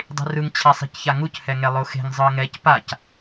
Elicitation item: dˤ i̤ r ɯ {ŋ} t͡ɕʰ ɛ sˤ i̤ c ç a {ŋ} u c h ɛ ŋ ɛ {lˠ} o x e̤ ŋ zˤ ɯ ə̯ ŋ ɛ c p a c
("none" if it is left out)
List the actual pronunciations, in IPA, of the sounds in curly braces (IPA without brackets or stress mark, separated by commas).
ŋ, ŋ, lˠ